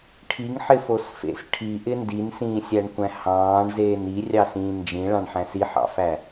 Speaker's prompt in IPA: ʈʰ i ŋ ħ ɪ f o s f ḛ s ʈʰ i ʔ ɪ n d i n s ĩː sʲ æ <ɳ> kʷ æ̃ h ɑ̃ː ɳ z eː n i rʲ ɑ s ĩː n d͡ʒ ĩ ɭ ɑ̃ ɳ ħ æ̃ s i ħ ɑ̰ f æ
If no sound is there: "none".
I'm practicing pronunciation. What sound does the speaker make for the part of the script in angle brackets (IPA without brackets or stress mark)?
ɳ